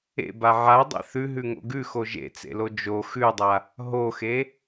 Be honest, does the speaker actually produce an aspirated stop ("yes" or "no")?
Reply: no